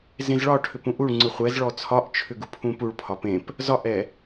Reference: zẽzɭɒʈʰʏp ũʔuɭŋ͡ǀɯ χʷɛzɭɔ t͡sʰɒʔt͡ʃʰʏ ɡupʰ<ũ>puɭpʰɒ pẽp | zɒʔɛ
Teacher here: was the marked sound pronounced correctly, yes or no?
yes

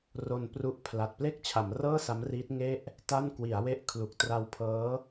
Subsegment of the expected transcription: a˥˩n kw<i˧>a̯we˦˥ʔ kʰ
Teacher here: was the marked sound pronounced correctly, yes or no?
no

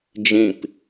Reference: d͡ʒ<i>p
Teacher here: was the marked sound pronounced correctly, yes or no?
no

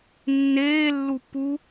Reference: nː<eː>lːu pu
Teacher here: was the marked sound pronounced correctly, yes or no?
yes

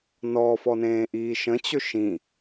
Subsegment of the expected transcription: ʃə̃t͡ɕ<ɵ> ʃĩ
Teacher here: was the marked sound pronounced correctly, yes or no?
yes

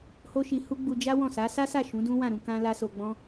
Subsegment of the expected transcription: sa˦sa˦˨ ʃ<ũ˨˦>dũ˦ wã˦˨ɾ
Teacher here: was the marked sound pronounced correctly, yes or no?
yes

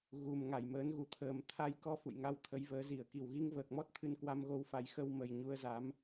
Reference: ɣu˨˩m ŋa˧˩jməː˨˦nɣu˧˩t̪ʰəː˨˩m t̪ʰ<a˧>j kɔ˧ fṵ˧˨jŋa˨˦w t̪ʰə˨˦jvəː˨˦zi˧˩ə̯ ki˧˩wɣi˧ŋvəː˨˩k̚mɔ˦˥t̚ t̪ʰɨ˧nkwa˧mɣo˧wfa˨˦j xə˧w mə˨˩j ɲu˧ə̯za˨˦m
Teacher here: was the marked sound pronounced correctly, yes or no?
yes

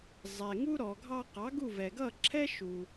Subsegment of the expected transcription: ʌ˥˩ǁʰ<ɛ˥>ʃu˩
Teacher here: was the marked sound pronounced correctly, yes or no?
yes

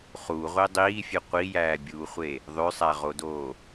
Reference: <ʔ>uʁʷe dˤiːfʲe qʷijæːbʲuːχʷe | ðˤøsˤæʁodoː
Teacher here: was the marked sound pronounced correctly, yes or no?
no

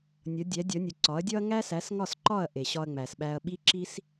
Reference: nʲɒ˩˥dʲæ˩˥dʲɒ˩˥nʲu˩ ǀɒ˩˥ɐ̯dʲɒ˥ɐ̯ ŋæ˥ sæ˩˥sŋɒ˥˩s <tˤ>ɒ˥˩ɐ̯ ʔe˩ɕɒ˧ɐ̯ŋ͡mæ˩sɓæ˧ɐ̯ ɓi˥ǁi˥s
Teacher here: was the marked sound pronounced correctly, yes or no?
no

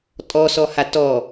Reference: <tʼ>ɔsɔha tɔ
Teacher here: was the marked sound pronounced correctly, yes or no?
yes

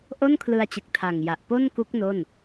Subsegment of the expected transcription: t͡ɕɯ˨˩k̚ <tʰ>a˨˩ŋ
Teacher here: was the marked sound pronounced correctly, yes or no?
yes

